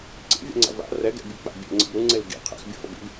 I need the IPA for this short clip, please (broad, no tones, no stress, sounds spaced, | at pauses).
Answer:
ǀ ḭ vʲ ɛ̰ ŋ͡ǀ a̰ v a̰ r ɛ ɡ ɛ̰ bʲ ɯ k͡p a̰ bʲ ɛ̰ ŋ͡ǀ ḭ b ɾ u ŋ͡ǀ e l ɡ ḭ qʰ ɛ̰ x bʲ u f ʌ b ḭ b